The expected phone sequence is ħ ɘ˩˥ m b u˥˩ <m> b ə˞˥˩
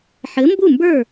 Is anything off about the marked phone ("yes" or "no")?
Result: no